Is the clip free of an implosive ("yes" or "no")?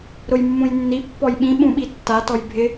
no